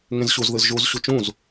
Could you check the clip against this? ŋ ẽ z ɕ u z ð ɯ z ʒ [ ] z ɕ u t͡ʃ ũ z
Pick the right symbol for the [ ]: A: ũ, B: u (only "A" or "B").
B